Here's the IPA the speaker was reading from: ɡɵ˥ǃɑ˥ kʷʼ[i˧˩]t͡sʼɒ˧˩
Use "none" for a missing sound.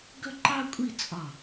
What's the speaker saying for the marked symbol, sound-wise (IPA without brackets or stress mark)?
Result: i˥˧